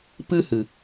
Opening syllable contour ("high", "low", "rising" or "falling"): high